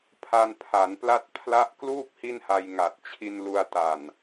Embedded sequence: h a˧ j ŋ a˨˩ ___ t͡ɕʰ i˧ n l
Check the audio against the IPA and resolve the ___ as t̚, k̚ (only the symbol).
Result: t̚